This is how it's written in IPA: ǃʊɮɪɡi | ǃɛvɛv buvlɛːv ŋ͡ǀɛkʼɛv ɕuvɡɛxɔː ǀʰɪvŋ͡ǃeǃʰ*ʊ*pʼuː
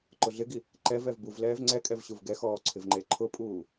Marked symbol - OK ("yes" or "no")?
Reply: yes